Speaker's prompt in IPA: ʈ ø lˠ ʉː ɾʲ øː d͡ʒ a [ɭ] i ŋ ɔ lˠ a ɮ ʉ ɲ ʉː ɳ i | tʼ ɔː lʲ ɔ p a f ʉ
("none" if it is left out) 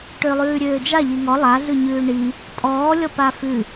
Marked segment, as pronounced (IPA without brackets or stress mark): ʎ